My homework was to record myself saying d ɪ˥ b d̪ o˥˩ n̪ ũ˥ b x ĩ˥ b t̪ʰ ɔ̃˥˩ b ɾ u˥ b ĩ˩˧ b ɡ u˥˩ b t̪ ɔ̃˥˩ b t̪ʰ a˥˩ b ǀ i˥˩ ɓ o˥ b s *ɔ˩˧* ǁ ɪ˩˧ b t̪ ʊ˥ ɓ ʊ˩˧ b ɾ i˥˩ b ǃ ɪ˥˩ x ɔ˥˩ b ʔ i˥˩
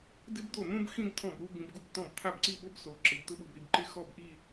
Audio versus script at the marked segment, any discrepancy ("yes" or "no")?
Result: yes